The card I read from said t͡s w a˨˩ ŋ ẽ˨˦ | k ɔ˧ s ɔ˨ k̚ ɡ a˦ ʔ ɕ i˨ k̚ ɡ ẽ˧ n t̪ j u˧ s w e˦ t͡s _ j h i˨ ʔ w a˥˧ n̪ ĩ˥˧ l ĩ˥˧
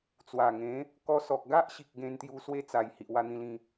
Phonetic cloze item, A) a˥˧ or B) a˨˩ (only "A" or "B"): B